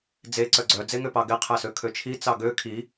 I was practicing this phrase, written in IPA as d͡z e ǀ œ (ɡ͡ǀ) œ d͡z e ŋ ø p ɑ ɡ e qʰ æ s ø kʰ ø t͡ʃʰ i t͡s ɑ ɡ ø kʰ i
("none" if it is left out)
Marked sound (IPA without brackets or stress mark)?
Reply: ɡ͡ǀ